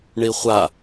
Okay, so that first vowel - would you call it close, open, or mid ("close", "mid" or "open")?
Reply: close